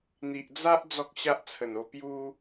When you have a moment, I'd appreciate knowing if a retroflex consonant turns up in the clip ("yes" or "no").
no